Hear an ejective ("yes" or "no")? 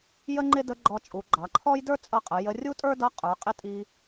yes